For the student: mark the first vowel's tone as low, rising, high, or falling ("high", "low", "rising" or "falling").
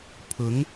rising